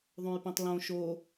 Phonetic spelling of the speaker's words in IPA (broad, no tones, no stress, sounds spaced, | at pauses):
ðˤ õ j p ẽ tˤ l õ ʃ o